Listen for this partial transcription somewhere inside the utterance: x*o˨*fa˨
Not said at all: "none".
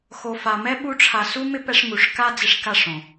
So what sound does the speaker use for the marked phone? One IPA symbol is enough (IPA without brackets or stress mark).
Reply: o˨